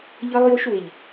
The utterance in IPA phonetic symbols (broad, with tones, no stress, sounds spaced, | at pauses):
ʎ ɤ˦ lˠ j o˦ ʃ w ɪ˨ ʎ